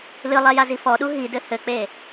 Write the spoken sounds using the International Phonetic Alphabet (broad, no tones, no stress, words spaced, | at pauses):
lɨlˠɛ jazifɔɗu ɦidɘ hɘk͡pe